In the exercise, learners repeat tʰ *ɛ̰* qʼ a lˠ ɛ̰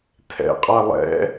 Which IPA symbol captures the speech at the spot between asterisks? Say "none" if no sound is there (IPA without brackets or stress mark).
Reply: ɛ̰